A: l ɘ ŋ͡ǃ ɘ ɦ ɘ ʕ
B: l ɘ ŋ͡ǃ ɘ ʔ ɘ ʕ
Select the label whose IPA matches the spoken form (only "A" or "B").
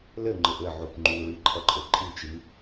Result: B